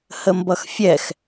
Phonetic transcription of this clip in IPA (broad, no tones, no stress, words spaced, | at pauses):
həmbʌxfʲɛx